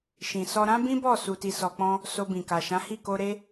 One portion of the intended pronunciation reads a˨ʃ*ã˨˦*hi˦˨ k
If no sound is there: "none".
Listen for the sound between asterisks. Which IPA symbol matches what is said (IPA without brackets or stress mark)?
ã˨˦